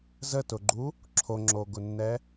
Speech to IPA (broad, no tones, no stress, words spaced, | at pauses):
zətʊɡ͡ǃu | ǁʰoŋ͡ǁoɡʊnːɛ